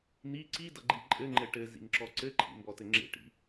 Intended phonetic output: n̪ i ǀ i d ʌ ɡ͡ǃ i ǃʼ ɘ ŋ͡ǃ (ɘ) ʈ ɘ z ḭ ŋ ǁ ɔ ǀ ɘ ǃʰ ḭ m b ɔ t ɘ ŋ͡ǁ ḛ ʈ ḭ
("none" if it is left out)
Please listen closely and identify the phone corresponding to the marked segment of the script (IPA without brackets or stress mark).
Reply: ɘ